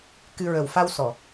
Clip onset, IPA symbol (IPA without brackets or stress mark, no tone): k